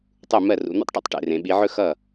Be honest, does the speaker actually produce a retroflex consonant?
yes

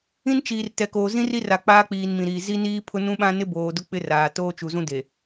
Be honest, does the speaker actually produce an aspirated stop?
yes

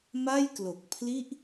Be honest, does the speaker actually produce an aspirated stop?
yes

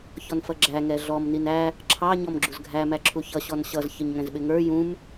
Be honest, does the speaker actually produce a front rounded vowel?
no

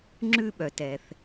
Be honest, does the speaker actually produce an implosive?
yes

